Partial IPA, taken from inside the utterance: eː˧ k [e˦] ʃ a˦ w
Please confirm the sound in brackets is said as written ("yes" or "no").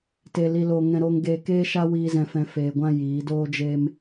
no